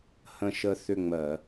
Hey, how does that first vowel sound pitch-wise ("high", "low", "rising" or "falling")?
falling